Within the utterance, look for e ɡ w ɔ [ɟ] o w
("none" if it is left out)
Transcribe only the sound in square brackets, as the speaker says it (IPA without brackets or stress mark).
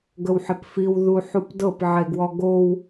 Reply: ɡ